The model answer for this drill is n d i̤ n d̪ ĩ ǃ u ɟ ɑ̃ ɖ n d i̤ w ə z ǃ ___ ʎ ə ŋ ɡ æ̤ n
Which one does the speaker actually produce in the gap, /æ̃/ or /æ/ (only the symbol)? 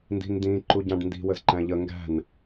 æ̃